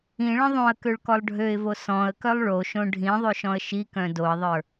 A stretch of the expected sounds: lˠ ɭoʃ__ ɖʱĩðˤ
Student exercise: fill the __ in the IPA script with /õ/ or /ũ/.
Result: õ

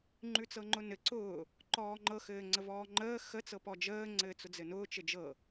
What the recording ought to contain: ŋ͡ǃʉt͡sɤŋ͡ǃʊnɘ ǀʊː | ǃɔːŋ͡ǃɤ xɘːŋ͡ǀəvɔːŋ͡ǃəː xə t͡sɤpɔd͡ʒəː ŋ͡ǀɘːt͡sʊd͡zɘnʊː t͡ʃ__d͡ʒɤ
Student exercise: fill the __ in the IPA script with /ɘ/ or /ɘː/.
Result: ɘ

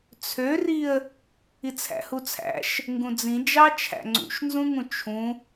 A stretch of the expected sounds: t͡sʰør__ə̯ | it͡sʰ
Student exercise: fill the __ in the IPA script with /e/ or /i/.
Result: i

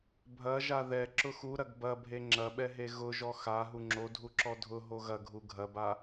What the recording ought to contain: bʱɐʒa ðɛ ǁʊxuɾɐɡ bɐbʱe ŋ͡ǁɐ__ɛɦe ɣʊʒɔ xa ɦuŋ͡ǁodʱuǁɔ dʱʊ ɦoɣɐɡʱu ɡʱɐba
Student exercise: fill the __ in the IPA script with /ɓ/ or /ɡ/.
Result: ɓ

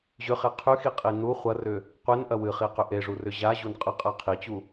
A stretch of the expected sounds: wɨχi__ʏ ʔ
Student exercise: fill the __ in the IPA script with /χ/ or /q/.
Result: q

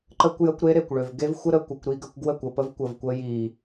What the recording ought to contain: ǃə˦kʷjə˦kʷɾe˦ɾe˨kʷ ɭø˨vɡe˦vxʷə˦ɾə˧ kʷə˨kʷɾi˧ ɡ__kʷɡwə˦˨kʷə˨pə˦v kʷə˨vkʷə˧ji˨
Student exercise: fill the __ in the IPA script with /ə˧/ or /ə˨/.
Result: ə˧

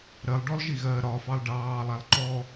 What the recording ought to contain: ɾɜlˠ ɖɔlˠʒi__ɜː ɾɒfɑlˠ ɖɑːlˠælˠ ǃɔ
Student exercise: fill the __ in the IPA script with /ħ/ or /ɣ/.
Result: ɣ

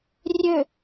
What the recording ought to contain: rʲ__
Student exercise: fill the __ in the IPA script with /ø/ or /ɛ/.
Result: ø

